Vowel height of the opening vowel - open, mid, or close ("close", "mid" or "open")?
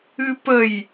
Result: close